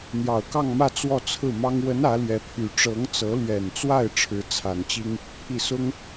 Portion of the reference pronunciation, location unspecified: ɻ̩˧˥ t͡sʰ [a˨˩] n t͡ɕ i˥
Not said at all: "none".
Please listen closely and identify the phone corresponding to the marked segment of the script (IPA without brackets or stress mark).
a˨˩